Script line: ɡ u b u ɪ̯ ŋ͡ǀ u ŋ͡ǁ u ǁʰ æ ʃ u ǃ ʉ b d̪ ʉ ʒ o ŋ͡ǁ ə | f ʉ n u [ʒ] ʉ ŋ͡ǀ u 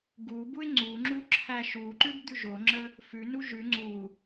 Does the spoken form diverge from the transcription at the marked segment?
no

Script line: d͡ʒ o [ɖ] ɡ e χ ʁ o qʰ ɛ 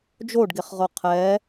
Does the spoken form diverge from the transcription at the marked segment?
no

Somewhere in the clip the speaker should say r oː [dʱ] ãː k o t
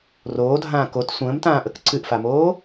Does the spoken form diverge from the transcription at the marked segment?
no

